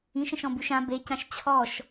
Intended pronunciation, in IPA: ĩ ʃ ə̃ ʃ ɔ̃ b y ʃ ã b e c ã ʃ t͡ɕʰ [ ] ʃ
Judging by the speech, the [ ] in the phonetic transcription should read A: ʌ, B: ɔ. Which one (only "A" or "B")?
B